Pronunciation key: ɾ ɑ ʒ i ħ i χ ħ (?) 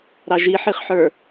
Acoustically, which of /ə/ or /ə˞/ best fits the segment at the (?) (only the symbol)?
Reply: ə˞